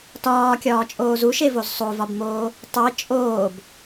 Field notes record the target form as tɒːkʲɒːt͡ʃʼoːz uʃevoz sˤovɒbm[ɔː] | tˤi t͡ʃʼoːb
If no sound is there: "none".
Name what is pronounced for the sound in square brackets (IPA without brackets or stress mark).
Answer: oː